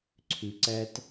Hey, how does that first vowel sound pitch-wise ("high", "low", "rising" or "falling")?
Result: low